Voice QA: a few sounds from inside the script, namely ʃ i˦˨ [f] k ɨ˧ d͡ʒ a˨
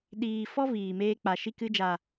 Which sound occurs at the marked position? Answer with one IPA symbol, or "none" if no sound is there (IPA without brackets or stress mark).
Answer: none